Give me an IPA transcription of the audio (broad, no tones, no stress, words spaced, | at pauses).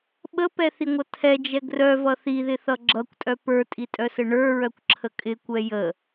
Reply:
ɓəpɛθiŋʷʌ tʰɛd͡ʒɛ ɡrœvʌ θiðɪθʌ ɡ͡ǁʌkʷtʼœ pə˞tʼitʼœsə ɳə˞ɹœkʷǁʰə kʼɪkʷɛ jə